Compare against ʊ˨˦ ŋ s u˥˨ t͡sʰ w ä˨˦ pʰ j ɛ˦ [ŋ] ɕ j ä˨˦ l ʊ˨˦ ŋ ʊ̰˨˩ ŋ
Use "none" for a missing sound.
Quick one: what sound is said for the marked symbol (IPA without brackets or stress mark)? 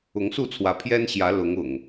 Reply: n